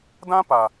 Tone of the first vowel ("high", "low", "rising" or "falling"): high